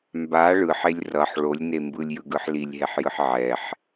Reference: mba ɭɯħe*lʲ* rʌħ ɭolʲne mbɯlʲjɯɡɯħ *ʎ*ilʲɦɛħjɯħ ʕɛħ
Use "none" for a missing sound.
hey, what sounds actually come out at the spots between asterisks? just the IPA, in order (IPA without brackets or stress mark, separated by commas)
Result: lʲ, l